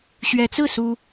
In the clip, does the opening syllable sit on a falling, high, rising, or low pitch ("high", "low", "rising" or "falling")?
rising